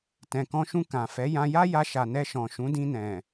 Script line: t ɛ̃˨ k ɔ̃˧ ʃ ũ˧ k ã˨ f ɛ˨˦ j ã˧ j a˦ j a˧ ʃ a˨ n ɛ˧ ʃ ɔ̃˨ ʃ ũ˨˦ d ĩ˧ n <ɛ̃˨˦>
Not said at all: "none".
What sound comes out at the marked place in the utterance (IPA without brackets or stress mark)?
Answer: ɛ̃˨